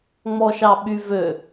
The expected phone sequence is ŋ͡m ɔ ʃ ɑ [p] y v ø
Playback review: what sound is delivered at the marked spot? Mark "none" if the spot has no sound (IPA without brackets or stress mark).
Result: ɓ